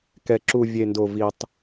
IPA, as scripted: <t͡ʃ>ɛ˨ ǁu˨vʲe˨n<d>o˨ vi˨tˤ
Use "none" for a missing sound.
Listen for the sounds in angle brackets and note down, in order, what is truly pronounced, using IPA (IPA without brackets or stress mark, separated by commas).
k, d